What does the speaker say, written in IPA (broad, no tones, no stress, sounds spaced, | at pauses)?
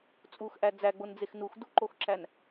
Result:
t͡sʼ u x ʔ æ d͡z æ ɡ͡b o n d͡z e x n u x d u ǃ o x ǁ æ n